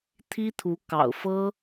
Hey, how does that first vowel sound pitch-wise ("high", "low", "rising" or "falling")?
high